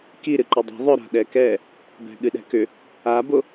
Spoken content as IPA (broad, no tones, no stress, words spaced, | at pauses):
kiɾɨ ǃʏdˤɛ̤ ðˤʏ ɾa̤ɗɛkɛ | bɛ̤ɠɨɗɛ̤kʏ | abo